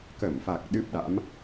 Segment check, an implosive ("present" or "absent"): present